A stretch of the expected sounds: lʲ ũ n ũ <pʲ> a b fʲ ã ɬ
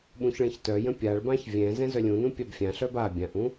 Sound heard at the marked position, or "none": pʲ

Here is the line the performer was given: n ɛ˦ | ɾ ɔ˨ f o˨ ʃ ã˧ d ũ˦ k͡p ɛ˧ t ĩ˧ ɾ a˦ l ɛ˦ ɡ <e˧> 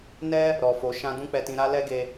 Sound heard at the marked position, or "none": e˧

